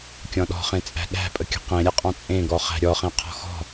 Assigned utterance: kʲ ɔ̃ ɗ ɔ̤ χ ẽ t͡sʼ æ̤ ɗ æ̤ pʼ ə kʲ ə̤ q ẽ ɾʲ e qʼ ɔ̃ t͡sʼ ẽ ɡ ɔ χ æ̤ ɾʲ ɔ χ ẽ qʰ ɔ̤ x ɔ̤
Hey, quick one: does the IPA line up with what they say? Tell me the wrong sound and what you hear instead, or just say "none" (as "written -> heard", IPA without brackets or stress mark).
none